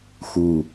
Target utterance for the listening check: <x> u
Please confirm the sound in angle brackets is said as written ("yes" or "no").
yes